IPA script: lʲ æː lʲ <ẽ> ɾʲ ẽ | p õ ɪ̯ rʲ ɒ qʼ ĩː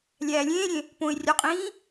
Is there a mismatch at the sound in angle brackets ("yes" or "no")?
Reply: yes